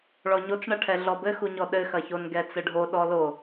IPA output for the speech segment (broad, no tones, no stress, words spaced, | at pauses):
ɭɔɲot͡sɳɐʈʰɛ ɮɔbɘxuɲɔ ɗɘxɐçon ɡɛt͡sɘɖʱo ɗɔlo